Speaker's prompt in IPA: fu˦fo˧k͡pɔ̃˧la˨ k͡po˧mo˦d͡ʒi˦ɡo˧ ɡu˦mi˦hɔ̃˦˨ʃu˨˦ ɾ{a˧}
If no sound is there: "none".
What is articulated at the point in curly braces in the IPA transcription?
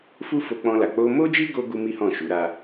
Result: a˦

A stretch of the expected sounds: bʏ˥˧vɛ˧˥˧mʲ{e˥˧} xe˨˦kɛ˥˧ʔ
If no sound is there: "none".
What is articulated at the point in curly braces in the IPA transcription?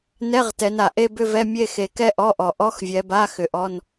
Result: e˥˧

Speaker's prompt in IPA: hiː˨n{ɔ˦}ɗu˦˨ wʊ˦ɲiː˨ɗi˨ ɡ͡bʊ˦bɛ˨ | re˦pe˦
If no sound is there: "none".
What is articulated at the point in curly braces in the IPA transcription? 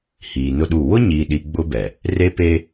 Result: ʊ˦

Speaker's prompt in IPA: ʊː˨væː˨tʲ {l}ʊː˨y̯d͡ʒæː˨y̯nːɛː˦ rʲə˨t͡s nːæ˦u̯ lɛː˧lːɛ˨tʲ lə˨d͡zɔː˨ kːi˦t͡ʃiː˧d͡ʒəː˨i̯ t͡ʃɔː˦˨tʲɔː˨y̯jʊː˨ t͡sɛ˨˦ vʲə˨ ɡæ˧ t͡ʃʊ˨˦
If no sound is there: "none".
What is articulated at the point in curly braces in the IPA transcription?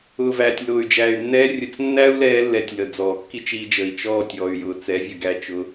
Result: l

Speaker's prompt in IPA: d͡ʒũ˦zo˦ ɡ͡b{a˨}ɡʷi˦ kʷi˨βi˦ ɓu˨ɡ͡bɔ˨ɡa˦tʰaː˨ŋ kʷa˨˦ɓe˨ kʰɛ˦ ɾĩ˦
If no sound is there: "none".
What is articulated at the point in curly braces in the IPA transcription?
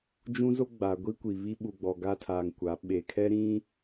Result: a˨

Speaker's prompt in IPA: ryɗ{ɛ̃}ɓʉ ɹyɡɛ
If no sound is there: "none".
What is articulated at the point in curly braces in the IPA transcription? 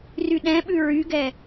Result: ɛ̃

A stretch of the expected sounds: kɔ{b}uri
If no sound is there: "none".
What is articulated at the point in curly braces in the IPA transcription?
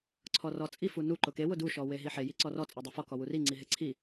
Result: w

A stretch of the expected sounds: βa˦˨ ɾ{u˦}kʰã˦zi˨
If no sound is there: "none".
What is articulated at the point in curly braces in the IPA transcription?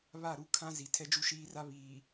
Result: u˦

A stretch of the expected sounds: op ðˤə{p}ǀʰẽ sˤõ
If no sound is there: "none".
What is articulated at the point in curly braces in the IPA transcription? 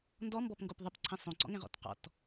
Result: p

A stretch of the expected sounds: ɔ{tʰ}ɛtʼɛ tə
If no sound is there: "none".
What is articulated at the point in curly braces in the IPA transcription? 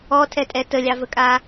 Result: tʰ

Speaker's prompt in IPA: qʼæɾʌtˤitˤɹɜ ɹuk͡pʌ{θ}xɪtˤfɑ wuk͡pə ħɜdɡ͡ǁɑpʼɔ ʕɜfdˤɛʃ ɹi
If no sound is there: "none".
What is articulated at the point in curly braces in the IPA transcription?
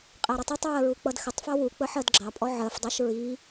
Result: d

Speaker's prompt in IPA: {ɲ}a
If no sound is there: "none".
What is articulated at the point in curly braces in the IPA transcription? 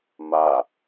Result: m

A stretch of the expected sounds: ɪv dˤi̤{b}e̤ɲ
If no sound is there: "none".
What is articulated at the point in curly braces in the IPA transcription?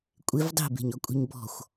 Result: b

